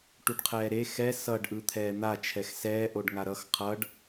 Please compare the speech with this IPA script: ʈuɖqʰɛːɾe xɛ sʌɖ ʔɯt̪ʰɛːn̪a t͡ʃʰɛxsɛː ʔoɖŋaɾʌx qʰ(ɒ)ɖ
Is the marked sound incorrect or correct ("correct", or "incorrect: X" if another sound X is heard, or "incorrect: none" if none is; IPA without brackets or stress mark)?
incorrect: ʌ